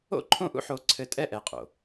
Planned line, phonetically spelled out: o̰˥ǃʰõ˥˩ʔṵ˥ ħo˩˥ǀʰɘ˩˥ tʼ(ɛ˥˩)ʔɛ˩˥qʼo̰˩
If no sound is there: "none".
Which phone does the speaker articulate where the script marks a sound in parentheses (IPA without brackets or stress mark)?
ɛ˥˩